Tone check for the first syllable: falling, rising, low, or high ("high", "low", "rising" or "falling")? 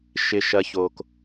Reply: low